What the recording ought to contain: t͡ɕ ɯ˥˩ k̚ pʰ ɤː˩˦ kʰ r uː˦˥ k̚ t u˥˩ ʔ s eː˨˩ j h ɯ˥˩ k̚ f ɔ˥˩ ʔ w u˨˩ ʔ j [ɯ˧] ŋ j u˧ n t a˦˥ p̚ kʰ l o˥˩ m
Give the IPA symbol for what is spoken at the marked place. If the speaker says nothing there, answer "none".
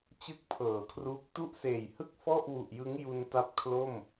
ɯ˦˥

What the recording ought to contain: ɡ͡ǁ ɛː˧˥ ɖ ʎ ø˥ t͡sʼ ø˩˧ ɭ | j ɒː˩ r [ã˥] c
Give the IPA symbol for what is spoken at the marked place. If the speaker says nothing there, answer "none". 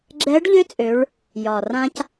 ã˧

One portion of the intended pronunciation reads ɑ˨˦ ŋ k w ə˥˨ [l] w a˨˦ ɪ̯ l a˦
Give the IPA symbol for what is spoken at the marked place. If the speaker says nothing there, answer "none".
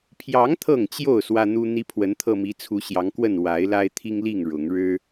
n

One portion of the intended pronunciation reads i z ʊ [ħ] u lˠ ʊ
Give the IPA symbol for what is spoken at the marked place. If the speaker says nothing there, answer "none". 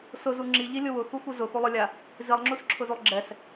x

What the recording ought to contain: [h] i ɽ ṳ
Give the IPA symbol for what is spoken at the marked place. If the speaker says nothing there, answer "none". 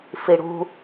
f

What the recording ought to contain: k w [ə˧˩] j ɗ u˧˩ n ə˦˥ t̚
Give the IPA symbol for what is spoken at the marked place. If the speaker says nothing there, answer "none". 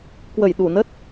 ə˧˩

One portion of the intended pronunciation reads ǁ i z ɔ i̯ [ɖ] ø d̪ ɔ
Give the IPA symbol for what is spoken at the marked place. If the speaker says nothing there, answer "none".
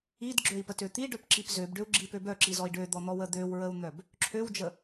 ɖ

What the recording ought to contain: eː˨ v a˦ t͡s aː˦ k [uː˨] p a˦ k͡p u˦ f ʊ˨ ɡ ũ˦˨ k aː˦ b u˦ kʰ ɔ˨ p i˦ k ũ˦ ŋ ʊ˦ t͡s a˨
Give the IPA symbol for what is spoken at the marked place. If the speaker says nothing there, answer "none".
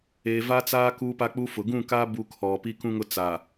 uː˦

